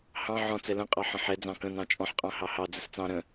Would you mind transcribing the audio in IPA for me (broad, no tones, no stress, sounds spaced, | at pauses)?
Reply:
h ɑ̃ ʕ ɔ̃ t͡s ɛ l ə̃ qʼ ɑ ħ ə̃ ħ ɛ d͡z ɑ̃ k ə̃ n ɑ̃ t͡ʃʼ ɔ̃ ħ qʼ ɑ̃ h ɑ h ɑ d͡z ə s t͡s ɑ̃ ɾ ə̃